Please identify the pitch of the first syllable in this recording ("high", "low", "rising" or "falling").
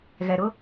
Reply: low